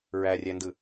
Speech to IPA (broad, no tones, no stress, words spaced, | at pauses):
ɹærʲændɯ